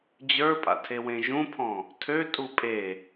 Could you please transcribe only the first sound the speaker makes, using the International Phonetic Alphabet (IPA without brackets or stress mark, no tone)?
d͡ʑ